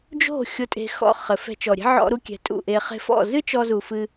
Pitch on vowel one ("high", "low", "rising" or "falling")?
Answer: falling